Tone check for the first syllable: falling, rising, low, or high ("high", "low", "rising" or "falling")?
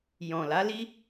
low